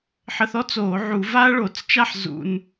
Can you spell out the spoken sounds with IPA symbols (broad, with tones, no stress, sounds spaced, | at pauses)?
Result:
ħ ə˧ θ ɔ˦˥ t͡s oː˧˩˧ ʕ u˧˩˧ v a˦˥ ɐ̯ ɭ o˧˩˧ t͡s t͡ʃ a˦˥ ħ z ṵ˧ n